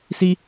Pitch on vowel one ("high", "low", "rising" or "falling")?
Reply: high